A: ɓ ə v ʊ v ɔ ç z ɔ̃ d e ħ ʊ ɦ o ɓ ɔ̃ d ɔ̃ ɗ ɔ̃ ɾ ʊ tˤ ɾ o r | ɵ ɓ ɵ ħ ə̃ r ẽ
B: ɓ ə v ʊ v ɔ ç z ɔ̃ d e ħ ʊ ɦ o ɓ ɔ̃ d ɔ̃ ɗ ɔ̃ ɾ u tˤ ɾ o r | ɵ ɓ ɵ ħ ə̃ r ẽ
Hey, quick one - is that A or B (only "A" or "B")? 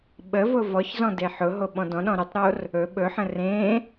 A